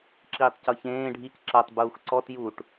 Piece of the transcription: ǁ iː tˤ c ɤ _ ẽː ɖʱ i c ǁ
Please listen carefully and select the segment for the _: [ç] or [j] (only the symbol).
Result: ç